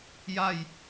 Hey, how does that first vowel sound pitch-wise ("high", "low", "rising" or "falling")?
falling